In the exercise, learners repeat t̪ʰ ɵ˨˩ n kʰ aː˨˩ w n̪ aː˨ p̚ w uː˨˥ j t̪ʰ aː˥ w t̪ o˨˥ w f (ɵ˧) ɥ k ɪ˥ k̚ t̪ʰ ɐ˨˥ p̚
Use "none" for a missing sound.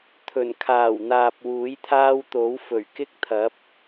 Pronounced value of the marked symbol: ɵ˨˩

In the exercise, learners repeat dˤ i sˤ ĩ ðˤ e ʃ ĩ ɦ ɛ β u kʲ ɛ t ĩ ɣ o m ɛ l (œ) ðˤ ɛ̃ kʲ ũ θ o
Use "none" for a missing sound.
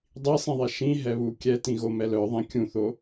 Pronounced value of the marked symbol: œ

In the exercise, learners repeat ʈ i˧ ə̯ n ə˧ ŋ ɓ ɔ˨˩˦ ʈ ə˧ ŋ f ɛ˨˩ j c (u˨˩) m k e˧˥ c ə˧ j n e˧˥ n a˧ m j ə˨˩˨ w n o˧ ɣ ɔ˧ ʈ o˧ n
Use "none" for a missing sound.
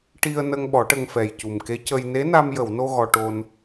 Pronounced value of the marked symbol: u˨˩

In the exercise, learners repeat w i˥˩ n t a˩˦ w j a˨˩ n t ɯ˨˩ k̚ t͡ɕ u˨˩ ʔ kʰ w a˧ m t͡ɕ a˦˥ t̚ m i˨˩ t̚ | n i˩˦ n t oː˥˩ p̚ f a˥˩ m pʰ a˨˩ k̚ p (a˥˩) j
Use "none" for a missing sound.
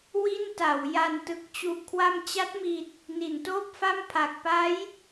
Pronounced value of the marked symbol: a˦˥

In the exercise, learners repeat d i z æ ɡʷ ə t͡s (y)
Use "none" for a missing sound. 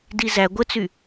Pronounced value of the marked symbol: y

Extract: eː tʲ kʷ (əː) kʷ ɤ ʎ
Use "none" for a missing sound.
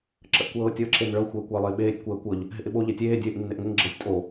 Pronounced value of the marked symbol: əː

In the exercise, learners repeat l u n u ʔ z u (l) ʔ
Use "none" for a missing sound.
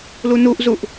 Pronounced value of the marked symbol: none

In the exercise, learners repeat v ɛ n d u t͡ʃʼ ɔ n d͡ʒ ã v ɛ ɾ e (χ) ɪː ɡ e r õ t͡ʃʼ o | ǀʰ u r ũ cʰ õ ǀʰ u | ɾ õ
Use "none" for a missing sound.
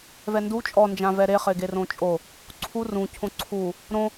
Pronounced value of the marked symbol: χ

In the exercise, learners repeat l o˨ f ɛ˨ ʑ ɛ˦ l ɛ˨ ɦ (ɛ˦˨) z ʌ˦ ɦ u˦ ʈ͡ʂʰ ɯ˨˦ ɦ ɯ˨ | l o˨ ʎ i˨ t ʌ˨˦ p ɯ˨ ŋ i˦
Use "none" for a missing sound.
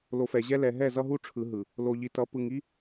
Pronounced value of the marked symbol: ɛ˦˨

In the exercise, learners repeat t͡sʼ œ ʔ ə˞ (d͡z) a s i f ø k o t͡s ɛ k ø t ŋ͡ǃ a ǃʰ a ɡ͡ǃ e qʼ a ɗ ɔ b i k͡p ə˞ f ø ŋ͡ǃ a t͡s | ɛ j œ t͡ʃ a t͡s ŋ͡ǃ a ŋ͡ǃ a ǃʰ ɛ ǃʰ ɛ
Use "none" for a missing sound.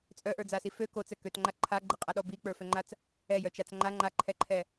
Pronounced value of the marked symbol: d͡z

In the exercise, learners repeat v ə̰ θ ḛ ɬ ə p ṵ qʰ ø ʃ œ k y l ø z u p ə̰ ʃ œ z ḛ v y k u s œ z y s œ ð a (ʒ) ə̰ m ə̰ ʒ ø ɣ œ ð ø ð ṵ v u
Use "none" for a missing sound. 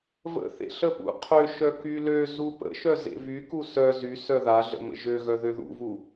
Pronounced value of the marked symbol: ɮ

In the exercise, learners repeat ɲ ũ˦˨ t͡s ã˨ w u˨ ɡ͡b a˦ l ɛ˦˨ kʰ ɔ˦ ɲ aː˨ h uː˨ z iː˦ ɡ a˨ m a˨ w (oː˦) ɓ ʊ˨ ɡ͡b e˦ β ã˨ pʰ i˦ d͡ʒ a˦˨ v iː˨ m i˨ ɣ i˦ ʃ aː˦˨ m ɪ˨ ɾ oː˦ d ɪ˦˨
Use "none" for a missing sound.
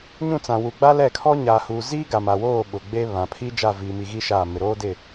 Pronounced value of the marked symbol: oː˦˨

